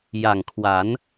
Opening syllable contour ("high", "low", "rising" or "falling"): low